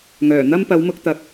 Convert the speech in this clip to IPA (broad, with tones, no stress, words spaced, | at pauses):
ŋœː˨˩n̪ɐ˥m pɐ˨˧wmʊ˧k̚ t̪ɐ˨k̚